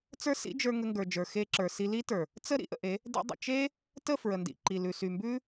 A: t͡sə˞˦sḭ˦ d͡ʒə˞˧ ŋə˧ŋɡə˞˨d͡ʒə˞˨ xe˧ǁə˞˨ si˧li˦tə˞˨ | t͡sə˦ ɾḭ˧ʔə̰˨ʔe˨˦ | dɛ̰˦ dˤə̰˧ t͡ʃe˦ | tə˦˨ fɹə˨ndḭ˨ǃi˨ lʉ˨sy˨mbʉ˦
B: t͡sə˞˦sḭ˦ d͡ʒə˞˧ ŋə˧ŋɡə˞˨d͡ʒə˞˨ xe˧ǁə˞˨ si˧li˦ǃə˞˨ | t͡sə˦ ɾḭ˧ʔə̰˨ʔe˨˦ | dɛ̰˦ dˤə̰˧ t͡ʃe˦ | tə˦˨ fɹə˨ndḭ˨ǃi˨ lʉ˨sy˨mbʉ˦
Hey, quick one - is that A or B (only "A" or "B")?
A